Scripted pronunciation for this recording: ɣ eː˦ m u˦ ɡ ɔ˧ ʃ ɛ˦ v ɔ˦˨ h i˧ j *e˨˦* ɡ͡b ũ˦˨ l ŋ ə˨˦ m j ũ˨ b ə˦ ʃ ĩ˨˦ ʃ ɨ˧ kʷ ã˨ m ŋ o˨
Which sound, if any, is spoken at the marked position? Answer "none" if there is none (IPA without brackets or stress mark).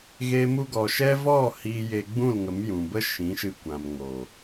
e˧